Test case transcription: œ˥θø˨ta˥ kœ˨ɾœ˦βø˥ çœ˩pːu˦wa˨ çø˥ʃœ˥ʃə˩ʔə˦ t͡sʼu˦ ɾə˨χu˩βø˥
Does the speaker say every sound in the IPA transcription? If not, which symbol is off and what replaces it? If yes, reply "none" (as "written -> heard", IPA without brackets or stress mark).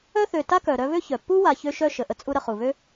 none